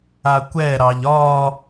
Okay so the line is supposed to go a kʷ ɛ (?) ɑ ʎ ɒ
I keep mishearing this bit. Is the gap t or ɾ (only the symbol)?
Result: ɾ